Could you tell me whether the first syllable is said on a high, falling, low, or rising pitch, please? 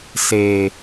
low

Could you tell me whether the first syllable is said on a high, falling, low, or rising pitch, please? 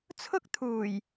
high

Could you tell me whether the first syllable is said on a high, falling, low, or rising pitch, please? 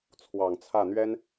low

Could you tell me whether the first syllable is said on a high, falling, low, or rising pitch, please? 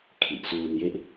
low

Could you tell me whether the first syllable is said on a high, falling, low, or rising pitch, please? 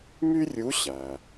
high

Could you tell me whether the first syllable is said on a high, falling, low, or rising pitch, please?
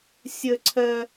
high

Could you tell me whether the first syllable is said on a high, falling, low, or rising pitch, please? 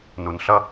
low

